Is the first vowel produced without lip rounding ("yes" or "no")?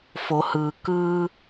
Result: no